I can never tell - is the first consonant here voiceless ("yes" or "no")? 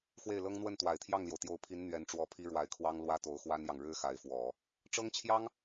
yes